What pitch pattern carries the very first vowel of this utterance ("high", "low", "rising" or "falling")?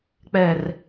low